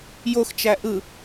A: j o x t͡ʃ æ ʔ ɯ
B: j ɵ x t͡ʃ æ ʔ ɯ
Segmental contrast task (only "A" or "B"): A